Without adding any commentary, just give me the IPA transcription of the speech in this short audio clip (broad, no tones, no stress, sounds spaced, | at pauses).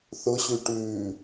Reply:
θ ʊ ɕ ʉ ʈ ʉː